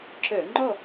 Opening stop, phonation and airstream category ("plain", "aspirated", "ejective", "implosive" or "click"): click